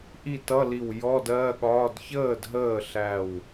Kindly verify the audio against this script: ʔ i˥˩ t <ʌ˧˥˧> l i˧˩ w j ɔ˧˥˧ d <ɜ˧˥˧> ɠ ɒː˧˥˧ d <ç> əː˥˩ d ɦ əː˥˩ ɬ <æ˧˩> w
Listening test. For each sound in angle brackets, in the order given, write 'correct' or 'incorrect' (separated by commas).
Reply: correct, correct, correct, correct